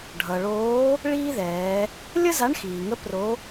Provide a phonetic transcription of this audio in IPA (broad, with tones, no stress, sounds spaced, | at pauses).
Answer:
ɖʱ ʌ˩ ɭ oː˧˥ | ɭ iː˥ ð ɛː˩˧ | lʲ ə˥ z a˧˥ ɳ x iː˩ ŋ ə˧˥ p r o˧˥